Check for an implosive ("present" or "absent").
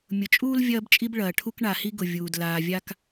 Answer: absent